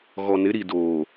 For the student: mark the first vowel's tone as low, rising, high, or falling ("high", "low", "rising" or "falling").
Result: low